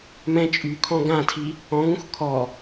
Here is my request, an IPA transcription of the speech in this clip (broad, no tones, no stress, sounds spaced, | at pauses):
m ɛ̃ t͡ʃʼ y kʰ ɔ̃ ɡ ã tʰ i | ɔ̃ ŋ ũ x kʰ ɔ